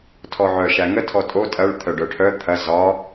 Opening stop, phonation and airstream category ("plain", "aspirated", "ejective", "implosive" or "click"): aspirated